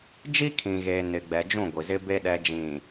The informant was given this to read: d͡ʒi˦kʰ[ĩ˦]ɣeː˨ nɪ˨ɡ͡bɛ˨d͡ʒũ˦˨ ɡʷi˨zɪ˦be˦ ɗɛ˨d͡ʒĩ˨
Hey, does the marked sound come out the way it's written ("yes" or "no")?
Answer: no